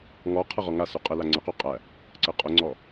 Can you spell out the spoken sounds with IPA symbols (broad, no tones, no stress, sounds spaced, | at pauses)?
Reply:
ŋ ɔ qʰ ə ʁ ɔ ŋ a s ʉ qʼ ə l a ŋ͡ǀ ə q ʉ qʼ æ | ǀ ə qʼ ʊ ŋ͡ǀ ɔ